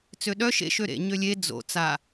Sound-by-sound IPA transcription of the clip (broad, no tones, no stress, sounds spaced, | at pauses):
t͡s ø ɗ œ ʃ ḛ ʃ ø ɾ ḛ ɲ ø lʲ e d͡z o̰ t͡s a